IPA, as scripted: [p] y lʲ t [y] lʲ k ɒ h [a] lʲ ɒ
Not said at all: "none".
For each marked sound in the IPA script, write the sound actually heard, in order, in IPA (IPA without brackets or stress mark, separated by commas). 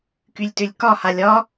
k, ʏ, a